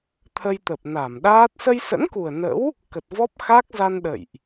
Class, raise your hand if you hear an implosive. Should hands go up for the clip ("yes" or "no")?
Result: yes